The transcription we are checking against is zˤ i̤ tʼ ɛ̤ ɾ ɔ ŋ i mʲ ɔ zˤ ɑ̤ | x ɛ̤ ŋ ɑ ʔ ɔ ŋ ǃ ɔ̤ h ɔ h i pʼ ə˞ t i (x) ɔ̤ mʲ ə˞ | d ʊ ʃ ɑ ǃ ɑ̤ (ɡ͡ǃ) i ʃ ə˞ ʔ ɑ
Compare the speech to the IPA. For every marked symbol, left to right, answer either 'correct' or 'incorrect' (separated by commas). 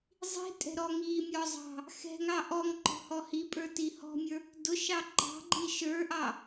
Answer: incorrect, correct